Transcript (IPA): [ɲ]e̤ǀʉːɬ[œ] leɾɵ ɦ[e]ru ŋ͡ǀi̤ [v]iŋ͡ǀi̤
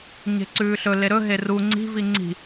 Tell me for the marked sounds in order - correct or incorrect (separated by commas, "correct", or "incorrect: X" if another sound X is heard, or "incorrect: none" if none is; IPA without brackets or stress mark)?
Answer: correct, incorrect: ɵ, correct, correct